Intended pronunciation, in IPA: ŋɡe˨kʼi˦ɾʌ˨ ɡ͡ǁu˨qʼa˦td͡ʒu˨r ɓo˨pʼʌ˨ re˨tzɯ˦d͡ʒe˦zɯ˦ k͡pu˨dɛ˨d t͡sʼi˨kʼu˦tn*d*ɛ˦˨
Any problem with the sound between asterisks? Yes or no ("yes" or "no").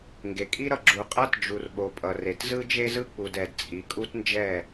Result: yes